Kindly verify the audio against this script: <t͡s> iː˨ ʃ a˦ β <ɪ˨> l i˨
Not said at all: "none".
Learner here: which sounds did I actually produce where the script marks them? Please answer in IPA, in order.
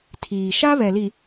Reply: tʰ, ɛ˨

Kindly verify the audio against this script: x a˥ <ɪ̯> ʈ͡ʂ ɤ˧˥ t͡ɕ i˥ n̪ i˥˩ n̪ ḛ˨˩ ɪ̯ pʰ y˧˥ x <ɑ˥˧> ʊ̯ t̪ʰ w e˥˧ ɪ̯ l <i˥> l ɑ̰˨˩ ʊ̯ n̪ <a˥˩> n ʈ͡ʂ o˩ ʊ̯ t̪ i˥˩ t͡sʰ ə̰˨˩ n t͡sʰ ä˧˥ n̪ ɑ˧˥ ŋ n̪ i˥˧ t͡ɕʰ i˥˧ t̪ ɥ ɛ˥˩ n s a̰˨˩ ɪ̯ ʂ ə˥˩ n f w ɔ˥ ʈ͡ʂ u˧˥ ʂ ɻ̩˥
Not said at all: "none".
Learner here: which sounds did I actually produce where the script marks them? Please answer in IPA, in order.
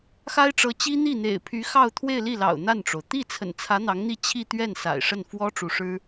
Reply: ɪ̯, ɑ˥˧, i˥˩, a˥˩

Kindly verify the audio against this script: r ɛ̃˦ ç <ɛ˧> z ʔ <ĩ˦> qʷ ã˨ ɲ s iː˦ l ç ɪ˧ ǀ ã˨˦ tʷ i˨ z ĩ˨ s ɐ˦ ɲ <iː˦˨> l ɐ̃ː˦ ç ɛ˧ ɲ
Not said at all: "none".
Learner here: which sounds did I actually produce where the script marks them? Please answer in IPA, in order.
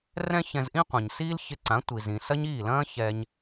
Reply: ɛ̃˧, ĩ˦, iː˦˨

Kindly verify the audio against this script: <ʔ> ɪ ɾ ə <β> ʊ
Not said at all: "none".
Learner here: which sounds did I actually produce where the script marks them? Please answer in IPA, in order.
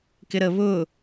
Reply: k, β

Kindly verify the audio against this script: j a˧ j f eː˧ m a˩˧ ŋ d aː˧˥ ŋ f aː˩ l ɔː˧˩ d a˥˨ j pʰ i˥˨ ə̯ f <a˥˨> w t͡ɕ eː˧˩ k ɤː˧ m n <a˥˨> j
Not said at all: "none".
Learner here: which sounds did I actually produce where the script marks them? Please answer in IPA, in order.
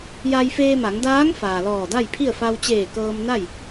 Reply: a˧, a˥˨

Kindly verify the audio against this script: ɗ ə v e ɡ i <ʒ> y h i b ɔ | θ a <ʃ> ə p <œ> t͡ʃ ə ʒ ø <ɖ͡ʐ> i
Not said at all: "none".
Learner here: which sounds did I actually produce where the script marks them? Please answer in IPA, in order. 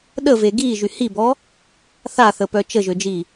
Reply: ʒ, θ, œ, d͡ʒ

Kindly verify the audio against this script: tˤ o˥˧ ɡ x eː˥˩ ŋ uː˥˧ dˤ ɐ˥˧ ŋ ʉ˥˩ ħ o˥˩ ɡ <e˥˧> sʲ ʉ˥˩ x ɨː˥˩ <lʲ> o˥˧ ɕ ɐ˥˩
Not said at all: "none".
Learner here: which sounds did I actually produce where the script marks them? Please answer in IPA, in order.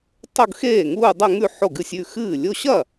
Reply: ɨ˥˧, lʲ

